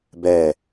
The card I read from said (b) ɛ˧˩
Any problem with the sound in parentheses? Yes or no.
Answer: no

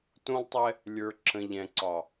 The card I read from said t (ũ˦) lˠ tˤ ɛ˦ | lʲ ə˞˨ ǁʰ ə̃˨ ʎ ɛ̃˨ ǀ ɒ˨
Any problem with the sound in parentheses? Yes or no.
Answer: no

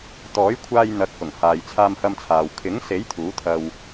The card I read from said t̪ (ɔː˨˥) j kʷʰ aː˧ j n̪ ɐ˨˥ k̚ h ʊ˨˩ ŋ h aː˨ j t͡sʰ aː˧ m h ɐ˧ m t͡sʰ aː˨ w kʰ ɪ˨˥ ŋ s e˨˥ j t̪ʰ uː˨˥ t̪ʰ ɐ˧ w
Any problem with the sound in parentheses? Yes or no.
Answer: no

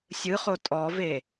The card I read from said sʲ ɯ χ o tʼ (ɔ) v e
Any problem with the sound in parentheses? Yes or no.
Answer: no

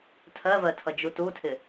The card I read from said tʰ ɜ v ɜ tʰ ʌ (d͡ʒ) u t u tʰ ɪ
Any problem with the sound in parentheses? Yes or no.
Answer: no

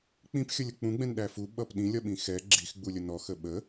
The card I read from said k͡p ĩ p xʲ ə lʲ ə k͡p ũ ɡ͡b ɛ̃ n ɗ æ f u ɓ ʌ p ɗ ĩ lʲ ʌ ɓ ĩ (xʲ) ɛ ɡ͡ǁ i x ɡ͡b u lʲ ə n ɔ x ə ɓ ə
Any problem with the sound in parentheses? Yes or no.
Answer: yes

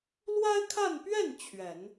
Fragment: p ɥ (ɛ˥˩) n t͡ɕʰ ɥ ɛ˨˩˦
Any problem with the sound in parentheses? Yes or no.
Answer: no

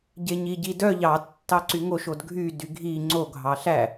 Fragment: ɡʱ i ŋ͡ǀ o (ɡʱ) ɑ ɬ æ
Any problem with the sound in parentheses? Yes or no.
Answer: no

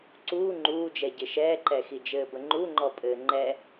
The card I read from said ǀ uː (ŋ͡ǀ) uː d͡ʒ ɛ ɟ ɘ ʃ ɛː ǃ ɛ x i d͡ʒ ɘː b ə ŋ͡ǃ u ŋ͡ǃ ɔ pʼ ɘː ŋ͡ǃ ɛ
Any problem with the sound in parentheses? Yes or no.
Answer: yes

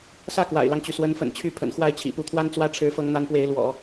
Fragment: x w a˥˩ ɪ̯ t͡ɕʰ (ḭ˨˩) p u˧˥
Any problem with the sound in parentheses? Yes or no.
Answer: no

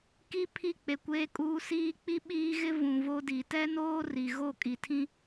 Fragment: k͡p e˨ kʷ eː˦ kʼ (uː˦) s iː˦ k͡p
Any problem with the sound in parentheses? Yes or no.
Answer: no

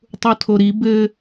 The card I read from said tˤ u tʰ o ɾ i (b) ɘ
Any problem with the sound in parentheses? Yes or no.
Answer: no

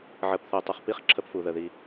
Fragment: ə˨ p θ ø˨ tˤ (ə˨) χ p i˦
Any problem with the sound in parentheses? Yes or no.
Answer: yes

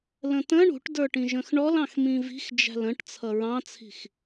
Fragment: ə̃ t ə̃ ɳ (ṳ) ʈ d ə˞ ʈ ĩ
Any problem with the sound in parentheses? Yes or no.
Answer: no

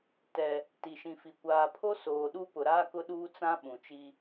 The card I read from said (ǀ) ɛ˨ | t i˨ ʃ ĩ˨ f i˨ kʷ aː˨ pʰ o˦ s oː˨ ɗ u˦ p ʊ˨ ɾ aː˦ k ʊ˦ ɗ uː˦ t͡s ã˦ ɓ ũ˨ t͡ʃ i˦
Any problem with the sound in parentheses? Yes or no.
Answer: yes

